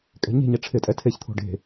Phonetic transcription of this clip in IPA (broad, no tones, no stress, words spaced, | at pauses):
kʼɛ̤ɲe̤ɲɛ ʈ͡ʂʰɪtʼɛ tʰeçt̪ʰo̤ ɖe̤